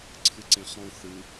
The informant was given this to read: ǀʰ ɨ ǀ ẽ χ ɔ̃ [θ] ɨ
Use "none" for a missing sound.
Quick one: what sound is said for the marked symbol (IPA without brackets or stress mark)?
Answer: θ